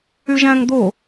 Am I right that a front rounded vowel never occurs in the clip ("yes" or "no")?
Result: no